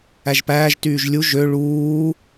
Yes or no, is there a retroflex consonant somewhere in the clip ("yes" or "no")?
yes